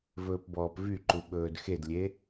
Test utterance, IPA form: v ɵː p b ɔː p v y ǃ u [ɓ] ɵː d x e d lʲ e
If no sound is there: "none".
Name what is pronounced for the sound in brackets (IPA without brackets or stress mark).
ɓ